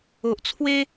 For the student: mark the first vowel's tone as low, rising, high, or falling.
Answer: low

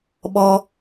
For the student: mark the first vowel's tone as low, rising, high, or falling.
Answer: high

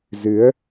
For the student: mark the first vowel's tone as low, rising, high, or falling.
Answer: rising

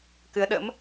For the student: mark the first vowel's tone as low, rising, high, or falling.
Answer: rising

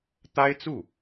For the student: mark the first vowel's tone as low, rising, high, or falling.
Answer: high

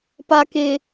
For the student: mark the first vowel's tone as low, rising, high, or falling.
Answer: low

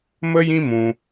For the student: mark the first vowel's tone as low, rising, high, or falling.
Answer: high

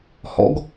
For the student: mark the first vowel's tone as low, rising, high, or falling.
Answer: rising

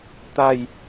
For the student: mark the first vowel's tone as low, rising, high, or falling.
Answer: falling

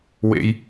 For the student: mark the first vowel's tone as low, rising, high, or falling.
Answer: high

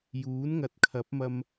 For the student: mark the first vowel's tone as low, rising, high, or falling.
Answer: rising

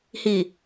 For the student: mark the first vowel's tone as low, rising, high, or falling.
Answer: low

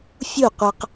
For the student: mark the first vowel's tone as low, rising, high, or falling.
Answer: falling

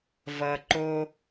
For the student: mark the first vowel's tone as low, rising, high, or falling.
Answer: low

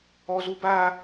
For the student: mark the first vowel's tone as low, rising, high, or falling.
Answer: high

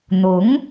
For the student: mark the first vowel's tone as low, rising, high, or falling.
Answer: rising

